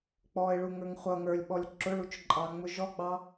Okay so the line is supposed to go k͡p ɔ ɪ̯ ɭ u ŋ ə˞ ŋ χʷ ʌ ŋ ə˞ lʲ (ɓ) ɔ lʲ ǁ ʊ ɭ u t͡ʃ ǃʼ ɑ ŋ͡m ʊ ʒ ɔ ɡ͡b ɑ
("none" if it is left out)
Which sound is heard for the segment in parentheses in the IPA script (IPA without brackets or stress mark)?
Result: ɓ